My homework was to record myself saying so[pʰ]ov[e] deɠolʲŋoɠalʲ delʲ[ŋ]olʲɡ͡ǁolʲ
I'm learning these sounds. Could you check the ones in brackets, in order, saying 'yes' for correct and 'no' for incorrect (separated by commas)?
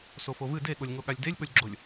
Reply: no, no, no